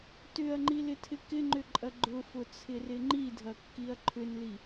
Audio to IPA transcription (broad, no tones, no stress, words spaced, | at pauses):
tʏɐ̯ŋ͡ǃilɪtʰɪ kɪŋ͡ǃʏǃʼɐ ɡ͡ǃʊfʊt͡sʰɪrɪ ŋ͡ǃidʱɐkːiɐ̯ ǃʰʏnli